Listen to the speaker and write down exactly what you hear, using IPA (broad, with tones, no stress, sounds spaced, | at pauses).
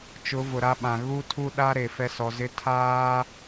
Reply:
t͡ʃ ʊ˨˦ v ʊ˨ ɾ a˦ ɓ ã˨ ɣ u˦ tʰ u˦ ɗ a˦ ɾ e˨ f ɛ˦ s ɔ˨˦ z ɪ˦ tʰ aː˦